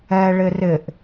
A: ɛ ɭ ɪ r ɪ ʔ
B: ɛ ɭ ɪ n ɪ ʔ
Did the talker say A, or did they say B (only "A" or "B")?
A